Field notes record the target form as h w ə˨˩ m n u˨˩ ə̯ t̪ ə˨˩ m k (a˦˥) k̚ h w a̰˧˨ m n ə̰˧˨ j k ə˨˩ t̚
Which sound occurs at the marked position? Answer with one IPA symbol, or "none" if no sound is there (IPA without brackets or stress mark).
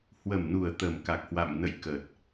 a˨˩